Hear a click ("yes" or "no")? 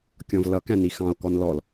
no